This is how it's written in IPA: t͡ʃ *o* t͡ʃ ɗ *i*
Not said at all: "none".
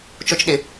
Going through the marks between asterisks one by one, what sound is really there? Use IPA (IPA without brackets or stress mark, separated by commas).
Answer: o, ɪ